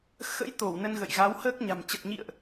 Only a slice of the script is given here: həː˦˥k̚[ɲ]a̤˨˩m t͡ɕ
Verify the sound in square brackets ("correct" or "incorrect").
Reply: correct